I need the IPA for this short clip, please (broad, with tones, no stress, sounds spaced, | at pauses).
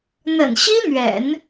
n̪ ə̰˨˩ n ɕ i˥ n̪ ɥ ɛ̰˨˩˦ n